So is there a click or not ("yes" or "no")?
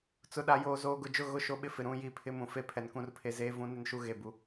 no